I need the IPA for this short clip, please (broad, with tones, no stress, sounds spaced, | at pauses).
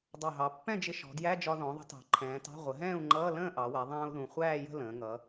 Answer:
dˤ ɑ˨˩ ɦ ɑ˩˧ pː ɛ̃˥˨ d͡ʒ ɪ˧ ʃ ɔ̤˩˧ d j æ˧˥˧ d͡ʒ ɒ˧ ð ɔ̃˩˧ ðˤ ə̤˨˥ t ɑ̤˩˧ ǃʰ ɛ̃ː˩˧ t ɑ̤˧˥˧ ʁʷ ə˩˧ ɦ ɛ̃ː˥˨ u̯ ŋ͡ǃ ʌː˧˥˧ l ə̃ː˥˨ ʔ ɑ˩˧ w ɛ˩˧ ðˤ ɛ̃ː˧ u̯ ð ũ˨˩ χʷ æː˥˨ j ə̤˥˨ l ə̃ː˩˧ ŋ ʌ˩˧